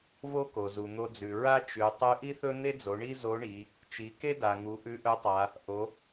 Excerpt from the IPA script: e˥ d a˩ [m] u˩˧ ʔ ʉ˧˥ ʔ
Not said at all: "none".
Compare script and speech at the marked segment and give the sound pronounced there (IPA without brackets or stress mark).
ŋ